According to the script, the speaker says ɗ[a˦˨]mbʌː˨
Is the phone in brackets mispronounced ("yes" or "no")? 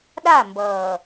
no